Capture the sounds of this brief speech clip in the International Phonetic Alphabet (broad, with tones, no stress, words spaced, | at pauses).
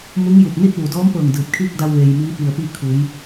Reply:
mu˧˥ŋju˧˩p̚ ni˥˨t̚ʋu˩dɔː˧˥mpɤː˧˩ŋ dɯː˧˩p̚kʰiː˥˨k̚da˧w ʋe˩j miː˧˥pi˧˩ə̯piː˥˨kʰu˩˧j